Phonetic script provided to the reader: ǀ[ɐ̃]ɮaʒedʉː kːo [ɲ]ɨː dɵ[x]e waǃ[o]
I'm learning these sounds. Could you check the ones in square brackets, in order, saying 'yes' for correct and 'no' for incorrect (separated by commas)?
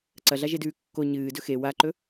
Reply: no, yes, yes, no